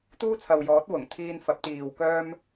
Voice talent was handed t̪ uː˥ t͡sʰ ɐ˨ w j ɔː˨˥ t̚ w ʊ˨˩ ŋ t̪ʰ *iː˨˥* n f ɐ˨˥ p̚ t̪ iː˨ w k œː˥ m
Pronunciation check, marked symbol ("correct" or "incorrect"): incorrect